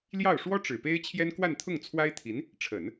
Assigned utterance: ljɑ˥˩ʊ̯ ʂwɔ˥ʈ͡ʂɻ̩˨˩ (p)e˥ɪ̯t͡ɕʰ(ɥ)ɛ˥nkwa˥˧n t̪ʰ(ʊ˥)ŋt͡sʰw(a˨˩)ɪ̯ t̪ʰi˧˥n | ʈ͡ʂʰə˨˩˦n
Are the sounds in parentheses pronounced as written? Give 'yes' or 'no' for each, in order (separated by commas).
yes, no, no, no